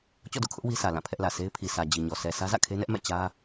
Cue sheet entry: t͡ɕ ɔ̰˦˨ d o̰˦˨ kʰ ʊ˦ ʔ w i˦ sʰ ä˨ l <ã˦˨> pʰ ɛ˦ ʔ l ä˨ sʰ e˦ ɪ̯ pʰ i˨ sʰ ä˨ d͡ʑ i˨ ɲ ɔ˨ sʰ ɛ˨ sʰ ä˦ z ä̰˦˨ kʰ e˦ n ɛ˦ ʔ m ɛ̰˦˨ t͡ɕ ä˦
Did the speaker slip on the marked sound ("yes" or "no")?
no